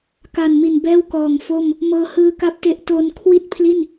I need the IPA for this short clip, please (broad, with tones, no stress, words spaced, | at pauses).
ka˨˩nmi˨˩n bɛː˥˩wkɔː˨˩ŋfo˥˩m | mɤː˧hɯː˦˥ ka˦˥p̚te˦˥ʔ to˧n kʰwi˥˩t̚pʰli˥˩n